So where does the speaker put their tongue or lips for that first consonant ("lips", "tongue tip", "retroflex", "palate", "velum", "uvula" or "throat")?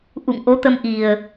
throat